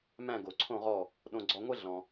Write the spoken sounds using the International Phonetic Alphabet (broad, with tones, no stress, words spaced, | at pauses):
mæ̃˥˧ɡo˧ǀʰõ˥˧ʁɔ˥˧ | ɗõ˧ɡ͡ǀɔ˧ ŋʷɛ˥ɮɔ̃˧